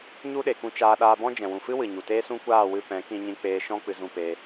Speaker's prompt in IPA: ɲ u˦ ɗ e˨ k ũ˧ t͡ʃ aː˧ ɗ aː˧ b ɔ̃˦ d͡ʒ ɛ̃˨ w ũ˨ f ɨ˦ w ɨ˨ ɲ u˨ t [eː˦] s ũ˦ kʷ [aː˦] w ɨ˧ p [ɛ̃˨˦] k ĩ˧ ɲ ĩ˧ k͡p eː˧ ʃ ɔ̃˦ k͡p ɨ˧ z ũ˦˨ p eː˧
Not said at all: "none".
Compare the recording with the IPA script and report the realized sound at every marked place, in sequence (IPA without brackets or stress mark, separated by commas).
eː˦, aː˦˨, ɛ̃˨˦